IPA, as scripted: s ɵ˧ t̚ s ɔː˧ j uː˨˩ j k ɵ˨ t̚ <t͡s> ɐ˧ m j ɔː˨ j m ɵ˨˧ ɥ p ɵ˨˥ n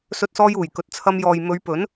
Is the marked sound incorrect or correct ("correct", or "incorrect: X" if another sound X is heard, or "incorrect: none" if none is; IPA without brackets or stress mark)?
incorrect: t͡sʰ